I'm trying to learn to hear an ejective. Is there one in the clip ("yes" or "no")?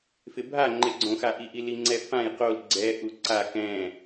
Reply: no